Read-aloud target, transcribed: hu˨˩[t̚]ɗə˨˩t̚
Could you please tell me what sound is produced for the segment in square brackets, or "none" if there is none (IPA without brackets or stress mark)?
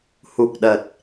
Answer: k̚